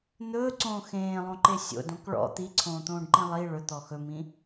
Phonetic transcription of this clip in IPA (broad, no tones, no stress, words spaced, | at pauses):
n̪ɵːǀõː xẽːlˠõǃe sʲo̰dõk ɭɔ̰ t̪iǀʰõːt̪õːɖǃĩ lˠi ɭɵt̪ɔ xɵmĩ